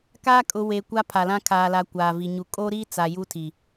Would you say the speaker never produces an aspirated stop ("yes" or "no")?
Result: no